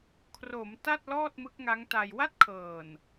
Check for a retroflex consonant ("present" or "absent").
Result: absent